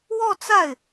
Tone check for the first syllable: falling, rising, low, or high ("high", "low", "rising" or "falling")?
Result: falling